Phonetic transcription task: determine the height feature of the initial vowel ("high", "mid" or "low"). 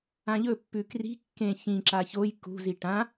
low